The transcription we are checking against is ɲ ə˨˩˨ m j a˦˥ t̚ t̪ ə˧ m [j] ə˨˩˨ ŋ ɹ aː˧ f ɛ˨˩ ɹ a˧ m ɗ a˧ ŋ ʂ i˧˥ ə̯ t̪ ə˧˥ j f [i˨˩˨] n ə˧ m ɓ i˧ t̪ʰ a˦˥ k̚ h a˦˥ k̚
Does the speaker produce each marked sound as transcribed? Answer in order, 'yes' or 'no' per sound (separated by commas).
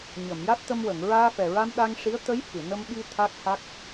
no, no